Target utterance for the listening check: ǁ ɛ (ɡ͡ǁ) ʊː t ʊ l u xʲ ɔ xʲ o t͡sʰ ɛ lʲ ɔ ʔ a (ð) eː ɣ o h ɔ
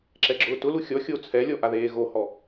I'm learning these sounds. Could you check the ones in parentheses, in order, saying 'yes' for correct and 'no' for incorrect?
yes, yes

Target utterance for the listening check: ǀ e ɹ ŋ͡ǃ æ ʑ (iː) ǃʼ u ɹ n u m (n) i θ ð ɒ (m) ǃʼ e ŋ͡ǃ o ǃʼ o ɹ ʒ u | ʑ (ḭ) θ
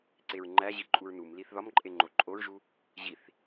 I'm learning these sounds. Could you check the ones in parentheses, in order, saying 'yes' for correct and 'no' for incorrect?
no, no, yes, no

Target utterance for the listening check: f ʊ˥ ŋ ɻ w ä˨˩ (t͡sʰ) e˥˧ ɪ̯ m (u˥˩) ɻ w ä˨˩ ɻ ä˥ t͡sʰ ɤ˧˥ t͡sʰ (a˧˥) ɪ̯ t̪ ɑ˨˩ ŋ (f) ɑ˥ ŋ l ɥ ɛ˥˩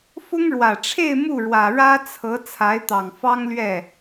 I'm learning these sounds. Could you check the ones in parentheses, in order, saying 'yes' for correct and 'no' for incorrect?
no, yes, yes, yes

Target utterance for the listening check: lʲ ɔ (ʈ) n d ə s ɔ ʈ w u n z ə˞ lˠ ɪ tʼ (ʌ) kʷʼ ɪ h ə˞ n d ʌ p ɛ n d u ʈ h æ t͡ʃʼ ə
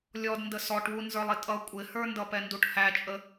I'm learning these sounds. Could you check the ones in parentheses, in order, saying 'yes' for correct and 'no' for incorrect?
no, yes

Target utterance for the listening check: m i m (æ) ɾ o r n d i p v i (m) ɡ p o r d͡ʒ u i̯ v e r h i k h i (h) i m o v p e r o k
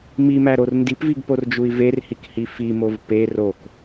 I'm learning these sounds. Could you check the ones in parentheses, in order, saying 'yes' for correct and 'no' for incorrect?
yes, no, no

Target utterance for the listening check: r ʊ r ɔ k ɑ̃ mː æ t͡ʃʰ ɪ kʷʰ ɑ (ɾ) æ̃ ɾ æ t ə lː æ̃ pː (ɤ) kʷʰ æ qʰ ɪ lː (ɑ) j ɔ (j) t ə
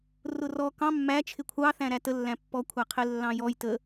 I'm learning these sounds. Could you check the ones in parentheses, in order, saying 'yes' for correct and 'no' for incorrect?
no, no, no, yes

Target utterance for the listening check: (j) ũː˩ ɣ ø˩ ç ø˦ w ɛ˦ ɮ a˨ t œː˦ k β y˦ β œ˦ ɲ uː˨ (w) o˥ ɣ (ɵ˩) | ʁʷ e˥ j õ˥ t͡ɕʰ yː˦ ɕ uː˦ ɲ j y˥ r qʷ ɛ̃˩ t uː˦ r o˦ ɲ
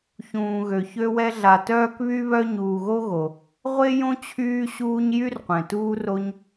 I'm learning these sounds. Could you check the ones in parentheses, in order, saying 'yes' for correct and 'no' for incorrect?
no, no, no

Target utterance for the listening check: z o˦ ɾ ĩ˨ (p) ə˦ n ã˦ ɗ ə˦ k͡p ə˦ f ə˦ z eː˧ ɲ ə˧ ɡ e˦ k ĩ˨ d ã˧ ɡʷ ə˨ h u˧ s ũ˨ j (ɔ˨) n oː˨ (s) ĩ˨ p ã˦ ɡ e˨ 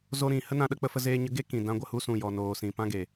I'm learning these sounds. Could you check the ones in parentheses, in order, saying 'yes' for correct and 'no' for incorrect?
no, yes, yes

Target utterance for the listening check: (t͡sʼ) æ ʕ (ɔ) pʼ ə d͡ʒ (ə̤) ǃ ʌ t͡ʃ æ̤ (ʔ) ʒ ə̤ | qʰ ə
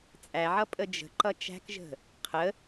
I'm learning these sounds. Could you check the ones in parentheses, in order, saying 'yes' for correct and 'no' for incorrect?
yes, no, yes, no

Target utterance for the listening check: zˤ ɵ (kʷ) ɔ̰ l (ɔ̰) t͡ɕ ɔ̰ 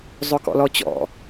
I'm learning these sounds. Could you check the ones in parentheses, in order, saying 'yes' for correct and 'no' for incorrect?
no, no

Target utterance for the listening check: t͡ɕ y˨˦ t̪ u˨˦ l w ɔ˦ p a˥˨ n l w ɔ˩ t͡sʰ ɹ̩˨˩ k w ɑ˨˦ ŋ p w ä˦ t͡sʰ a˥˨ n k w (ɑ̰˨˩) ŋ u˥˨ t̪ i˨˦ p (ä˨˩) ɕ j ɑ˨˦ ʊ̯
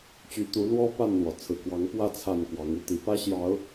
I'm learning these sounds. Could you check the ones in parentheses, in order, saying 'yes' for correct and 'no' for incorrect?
no, no

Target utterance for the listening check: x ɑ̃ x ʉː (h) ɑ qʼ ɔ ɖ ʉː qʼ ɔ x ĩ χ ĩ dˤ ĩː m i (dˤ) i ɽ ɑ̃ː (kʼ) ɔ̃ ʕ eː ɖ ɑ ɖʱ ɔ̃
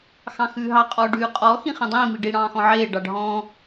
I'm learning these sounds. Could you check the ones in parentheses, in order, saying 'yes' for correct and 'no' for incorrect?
no, no, no

